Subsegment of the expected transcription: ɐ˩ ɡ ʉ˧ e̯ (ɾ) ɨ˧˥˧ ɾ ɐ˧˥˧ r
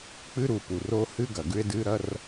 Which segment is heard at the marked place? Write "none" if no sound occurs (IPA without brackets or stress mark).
d